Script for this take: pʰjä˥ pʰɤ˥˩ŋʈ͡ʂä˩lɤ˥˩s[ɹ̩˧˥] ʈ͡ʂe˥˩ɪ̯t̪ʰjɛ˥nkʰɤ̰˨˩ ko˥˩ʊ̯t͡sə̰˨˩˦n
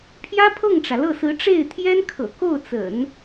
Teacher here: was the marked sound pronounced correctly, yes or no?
yes